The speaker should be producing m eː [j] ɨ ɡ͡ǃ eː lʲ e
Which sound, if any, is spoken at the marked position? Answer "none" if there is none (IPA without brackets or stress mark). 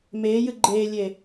j